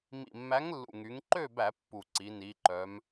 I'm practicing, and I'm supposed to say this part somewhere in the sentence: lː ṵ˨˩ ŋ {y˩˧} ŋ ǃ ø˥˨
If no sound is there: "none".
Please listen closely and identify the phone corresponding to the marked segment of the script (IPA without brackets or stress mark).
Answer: y˩˧